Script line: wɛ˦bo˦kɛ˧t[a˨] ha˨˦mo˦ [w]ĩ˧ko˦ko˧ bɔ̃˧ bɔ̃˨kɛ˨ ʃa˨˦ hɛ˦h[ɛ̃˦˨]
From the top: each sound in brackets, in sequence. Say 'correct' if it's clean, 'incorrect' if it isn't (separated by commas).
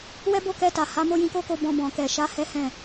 correct, incorrect, correct